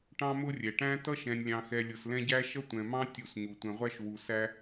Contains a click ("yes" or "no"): no